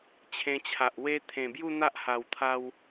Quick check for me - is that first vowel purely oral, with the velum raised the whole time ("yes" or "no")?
no